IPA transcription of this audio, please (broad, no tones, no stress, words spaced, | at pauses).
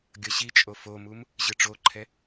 ɡʲʌɕit͡ʃʼo fomum | ʑɯʈ͡ʂoǃʰɛ